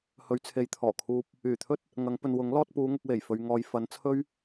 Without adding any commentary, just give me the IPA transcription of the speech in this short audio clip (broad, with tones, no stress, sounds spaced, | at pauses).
h ɵ˨˧ ɥ t͡sʰ e˨ j t̪ʰ ɔː˨˩ kʰ uː˧ p̚ | yː˨˩ t̪ʰ ɵ˥ t̚ | ŋ ɐ˨˧ ŋ p ɵ˨ n w ʊ˨˥ ŋ l ɔː˧ t̚ p uː˨˧ ŋ ʊ˨ k̚ w e˨˩ j f ɵ˨ ɥ ŋ ɔː˨ j f ɐ˨˧ n t͡sʰ ɵ˥ ɥ